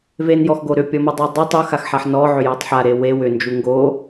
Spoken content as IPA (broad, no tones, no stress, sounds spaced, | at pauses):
v e n j ɔ x ɡ o ɾ ʏ pʲ ɔ m u dˤ u dˤ ʏ tˤ u x a x ħ a ħ n ɔ ʕ ʏ j ɔ tˤ ħ a ɾ e w e w ʏ n d͡ʒ u ŋ ɡ o